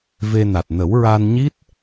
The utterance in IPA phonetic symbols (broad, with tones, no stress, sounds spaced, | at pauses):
v e˧ n a˨˩ t̚ n ə˨˩˦ w ɹ a˧ n ɲ i˦˥ t̚